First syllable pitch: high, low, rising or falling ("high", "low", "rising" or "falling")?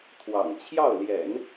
low